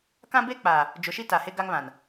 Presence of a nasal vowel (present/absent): present